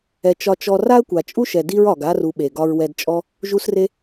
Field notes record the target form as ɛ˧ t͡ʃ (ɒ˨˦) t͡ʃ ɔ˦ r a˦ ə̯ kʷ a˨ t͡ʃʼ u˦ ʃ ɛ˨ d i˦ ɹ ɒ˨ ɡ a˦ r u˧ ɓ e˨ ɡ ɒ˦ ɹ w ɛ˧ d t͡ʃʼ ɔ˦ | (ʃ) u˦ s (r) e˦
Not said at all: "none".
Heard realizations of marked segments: ɒ˦, ʒ, r

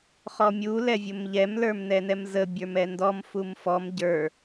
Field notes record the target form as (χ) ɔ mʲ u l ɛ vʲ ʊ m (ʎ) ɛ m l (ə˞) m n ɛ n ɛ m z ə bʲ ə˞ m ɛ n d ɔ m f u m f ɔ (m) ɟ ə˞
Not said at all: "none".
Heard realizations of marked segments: χ, ʎ, ə˞, m

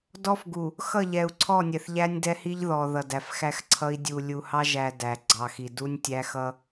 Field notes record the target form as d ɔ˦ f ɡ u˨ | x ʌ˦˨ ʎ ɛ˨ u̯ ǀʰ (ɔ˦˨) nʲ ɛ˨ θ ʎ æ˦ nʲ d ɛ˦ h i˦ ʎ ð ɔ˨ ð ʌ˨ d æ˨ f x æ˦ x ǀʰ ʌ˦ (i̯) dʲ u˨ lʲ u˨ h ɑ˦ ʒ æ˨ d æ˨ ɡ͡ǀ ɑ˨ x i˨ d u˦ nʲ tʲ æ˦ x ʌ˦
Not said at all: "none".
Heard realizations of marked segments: ɔ˦˨, i̯

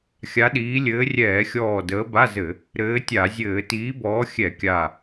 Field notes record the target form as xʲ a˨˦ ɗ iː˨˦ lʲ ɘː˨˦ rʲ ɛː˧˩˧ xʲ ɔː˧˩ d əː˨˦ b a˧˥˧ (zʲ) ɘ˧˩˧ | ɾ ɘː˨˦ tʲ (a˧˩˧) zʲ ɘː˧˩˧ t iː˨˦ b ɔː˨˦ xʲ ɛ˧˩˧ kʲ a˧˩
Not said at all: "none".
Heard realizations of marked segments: z, a˧˩˧

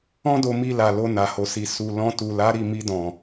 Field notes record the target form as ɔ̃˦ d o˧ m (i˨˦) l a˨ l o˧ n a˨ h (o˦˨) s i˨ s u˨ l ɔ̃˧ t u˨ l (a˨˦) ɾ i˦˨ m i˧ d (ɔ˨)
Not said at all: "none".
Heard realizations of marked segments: i˧, o˨, a˨˦, ɔ̃˨

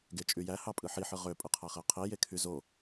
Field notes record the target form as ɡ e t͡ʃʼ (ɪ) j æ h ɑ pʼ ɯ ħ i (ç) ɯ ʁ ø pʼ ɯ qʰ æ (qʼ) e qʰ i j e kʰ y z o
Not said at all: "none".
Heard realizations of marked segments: y, ħ, χ

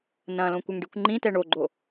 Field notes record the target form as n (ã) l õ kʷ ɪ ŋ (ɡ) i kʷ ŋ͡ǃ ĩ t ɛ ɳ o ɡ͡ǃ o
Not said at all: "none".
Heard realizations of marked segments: ɐ̃, ɖ

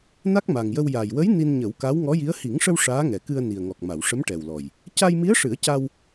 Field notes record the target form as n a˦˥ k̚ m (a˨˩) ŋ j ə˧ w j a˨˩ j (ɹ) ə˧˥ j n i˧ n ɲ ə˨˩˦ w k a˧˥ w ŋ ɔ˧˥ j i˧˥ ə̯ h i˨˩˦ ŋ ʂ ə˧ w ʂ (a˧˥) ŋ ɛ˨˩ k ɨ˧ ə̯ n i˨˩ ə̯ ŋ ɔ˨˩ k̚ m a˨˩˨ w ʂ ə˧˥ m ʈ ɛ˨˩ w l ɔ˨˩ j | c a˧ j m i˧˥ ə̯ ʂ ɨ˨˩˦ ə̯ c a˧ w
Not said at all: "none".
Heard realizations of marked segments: a˨˩, w, aː˧˥

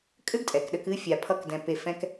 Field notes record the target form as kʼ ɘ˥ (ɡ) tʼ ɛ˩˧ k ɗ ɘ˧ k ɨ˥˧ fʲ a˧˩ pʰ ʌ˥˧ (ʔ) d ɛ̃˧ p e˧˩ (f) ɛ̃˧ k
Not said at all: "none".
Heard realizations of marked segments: ɡ, k, f

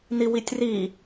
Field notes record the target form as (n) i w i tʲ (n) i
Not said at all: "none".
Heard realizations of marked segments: n, r

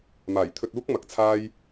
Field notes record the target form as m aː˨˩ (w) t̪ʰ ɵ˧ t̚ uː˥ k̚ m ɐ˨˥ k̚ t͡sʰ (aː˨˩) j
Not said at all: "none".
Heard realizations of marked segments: j, aː˥

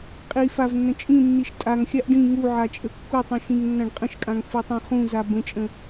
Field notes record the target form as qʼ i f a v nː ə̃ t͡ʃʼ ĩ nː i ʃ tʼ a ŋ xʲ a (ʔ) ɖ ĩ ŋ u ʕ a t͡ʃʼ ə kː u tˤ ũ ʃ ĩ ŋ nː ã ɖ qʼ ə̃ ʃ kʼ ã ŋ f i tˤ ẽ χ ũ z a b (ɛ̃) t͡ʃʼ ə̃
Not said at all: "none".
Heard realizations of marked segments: ʔ, ə̃

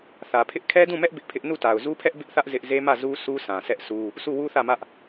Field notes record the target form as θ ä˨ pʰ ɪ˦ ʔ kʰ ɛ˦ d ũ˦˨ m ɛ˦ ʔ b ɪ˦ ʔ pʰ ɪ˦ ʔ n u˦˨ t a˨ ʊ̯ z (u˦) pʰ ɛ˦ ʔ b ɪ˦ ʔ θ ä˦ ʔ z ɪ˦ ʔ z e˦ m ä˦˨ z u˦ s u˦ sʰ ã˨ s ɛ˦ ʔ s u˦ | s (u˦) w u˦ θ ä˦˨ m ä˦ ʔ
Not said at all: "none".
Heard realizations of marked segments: u˦, u˦˨

